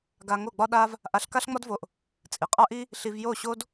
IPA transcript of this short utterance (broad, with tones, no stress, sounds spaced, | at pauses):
ɡ a˧ ŋ o˦˨ ɡ͡b ɒ˦ ɗ a˦ v | ʔ a˧ ɬ k a˦ ɬ ŋ͡m ɒ˦ d v o˧ ʔ | t͡sʼ i˨ qʼ a˦ ʔ i˦ | ɬ i˧ v j o˦˨ ɕ o˦ d